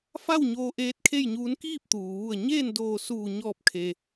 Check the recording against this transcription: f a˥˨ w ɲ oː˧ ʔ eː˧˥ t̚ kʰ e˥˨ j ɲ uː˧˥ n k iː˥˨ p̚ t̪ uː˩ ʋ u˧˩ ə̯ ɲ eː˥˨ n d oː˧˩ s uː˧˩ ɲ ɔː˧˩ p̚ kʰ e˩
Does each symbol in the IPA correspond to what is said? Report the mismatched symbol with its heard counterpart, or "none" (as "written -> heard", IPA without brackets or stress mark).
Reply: none